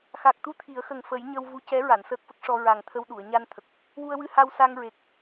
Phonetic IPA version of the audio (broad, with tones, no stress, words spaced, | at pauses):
xa˨˩k̚t̪u˧ t̪ʰi˨˩˦ə̯xə˨˩ŋ fə˨˩˦jɲə˧w vu˧˥cɛ˧˥ ɹa˨˩˨nsəː˦˥k̚fə˦˥k̚ʂɔ˧ ɹa˨˩ŋt̪ʰə˧wɗu˨˩˨ə̯ ɲa˧n t̪ʰə˨˩k̚ | wu˧ə̯wɨ˧ha˧w sa˧ŋɹe˨˩k̚